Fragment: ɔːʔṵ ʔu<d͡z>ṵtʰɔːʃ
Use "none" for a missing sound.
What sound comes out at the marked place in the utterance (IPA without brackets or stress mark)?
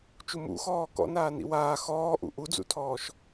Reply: d͡z